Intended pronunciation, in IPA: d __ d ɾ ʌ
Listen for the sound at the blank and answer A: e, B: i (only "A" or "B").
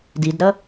B